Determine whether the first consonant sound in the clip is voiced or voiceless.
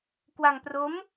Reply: voiceless